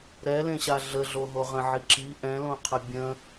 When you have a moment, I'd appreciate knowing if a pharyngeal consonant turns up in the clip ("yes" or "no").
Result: yes